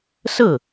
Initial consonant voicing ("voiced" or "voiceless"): voiceless